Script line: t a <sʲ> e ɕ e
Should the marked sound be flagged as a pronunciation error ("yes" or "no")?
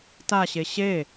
yes